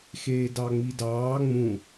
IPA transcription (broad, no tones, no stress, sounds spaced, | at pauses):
x eː d ɑ ŋ͡m i d ɑː ŋ͡m ũ